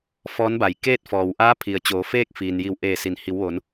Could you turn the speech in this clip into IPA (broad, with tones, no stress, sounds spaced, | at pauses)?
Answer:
f ɔː˧˥ n b a˩ j k eː˥˨ t̚ f ɔː˩ w ʔ aː˧˥ pʰ i˩ ə̯ t͡ɕ oː˩˧ f eː˥˨ k̚ f iː˩ n j i˧˩ w ʔ eː˧˩ s i˩˧ n h i˩˧ w ʋ o˩˧ n